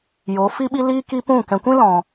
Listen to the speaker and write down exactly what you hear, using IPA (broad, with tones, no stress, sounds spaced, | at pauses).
j o˨˦ f i˦ ɓ i˦ l iː˦ k i˦ p ũ˦˨ k ɛ̃˨ kʷ ĩ˦ l ɔ̃˨